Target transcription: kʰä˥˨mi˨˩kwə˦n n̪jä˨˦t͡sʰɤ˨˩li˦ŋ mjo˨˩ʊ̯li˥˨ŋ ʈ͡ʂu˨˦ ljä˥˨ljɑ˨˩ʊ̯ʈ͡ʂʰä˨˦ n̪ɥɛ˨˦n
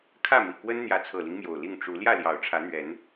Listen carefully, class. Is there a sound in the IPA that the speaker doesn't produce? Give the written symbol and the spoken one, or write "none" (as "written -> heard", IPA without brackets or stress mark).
none